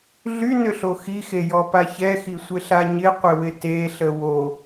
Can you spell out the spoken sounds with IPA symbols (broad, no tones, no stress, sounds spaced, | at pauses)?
ɮ y n ʏ ɬ o x i x e j ɔ p a ç ɛ x i sʷ ɪ ɬ a ɲ ɪ qʷ ɪ w ɪ t e ɬ ə w o